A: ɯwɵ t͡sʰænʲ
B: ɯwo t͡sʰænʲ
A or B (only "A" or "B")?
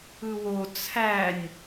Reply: B